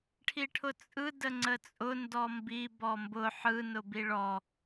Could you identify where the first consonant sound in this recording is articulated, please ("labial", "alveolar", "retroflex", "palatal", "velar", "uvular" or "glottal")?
retroflex